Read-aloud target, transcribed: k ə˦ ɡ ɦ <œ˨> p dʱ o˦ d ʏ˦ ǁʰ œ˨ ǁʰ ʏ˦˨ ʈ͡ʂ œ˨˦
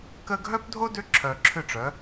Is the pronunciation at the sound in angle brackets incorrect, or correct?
incorrect: œ˦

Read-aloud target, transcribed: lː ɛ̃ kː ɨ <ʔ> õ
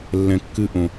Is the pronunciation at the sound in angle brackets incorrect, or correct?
correct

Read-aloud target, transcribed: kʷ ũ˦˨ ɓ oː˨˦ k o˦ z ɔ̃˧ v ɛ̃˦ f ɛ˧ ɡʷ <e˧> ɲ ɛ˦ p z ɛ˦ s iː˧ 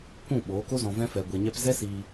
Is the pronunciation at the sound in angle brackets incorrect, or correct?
correct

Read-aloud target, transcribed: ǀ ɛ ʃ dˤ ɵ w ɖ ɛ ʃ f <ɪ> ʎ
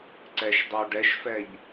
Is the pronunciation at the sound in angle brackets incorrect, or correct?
incorrect: ɛ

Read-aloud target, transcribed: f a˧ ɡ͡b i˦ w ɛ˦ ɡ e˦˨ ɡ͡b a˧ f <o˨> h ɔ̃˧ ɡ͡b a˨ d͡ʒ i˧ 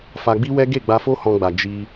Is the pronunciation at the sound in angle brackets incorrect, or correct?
incorrect: o˦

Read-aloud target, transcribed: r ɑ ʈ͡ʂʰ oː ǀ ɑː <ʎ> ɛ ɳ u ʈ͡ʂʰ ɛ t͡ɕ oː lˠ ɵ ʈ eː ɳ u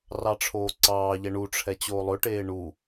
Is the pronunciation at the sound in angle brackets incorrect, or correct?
correct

